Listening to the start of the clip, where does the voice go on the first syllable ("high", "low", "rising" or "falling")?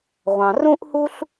low